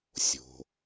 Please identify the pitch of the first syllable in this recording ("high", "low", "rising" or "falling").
low